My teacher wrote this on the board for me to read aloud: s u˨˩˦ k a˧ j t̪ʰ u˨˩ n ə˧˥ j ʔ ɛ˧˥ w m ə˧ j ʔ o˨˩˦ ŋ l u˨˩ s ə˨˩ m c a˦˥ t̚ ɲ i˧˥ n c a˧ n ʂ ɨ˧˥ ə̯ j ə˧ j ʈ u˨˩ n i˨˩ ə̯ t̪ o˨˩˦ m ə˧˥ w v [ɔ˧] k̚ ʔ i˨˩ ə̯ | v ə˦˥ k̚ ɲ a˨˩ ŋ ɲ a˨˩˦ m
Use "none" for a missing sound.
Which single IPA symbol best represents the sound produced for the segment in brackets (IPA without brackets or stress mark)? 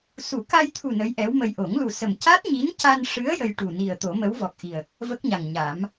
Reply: ɔ˨˩